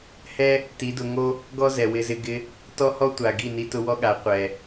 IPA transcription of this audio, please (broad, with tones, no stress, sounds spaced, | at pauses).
h ɛ˦ | t i˨˦ d ʊ˧ ŋ o˦ | ɡ ɔ˦ z ɛ˨ w ɪ˧ z ɪ˧ ɡ ɪ˧ | t ɔ˦ h ɔ˦ tʷ a˨ ɡ i˦˨ n i˧ t ʊ˧ w ɔ˦ ɠ a˨˦ qʷ ɛ˨